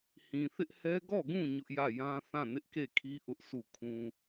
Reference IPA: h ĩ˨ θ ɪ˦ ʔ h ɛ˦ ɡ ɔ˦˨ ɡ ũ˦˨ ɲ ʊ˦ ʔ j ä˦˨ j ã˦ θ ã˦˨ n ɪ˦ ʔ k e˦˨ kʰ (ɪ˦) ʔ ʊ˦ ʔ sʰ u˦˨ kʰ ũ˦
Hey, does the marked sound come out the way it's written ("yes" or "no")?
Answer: no